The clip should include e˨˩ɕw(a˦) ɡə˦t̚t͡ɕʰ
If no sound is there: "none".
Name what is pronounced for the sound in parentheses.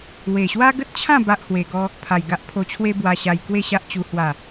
a˦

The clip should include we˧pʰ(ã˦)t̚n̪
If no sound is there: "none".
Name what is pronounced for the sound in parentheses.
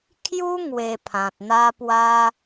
ã˨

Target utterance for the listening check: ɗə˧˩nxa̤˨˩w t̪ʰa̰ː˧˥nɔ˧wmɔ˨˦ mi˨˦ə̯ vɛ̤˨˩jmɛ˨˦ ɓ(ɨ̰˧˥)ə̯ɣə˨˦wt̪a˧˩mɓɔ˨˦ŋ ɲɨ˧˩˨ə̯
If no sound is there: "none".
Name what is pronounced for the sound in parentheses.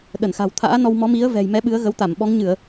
ɨ˨˦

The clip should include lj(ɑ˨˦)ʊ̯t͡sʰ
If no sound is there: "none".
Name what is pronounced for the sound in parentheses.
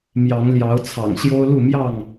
ɑ˨˦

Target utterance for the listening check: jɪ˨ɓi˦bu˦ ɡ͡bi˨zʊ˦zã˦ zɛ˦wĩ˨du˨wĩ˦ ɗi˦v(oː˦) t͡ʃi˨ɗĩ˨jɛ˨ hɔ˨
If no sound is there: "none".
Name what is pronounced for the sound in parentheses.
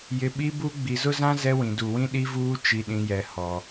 uː˦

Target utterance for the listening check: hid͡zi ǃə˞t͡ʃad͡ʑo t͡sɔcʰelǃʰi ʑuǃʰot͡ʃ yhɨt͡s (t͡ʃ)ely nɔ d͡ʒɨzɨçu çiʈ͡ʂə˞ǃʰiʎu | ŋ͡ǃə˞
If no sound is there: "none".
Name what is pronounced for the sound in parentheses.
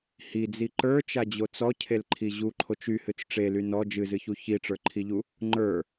ʈ͡ʂ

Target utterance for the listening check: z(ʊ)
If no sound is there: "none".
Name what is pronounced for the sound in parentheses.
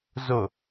ʊ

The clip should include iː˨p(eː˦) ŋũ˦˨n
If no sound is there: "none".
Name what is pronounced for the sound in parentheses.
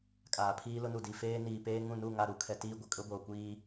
eː˦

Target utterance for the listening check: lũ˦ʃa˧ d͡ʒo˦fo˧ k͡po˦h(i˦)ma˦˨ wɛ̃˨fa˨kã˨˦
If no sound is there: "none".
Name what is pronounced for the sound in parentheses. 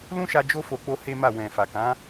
e˦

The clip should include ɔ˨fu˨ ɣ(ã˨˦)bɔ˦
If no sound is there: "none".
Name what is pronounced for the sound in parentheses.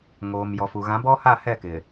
ã˨˦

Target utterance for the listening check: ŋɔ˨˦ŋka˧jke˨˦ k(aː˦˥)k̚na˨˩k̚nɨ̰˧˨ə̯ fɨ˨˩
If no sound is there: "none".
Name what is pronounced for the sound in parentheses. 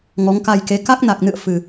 a˦˥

